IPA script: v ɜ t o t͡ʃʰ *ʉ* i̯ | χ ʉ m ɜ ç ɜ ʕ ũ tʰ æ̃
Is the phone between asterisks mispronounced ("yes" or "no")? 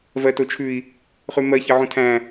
no